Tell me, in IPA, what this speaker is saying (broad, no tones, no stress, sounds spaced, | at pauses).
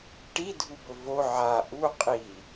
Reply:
ʈ i dʱ u b ɵ v o ʕ a ʔ u qʼ i